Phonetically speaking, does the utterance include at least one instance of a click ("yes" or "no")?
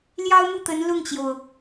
no